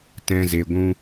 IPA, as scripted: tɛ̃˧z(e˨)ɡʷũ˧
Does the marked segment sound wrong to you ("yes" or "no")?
no